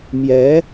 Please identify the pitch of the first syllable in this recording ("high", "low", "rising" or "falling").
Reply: rising